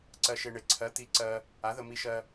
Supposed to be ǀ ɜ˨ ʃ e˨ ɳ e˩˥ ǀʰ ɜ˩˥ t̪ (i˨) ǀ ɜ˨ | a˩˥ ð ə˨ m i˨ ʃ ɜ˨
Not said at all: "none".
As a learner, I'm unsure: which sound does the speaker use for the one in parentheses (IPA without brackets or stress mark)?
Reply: i˨